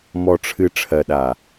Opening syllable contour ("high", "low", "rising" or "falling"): low